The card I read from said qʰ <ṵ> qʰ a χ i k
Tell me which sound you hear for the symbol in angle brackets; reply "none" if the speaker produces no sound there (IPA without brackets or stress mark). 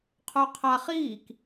u